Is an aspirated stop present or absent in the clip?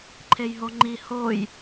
present